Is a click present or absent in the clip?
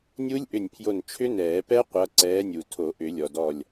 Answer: present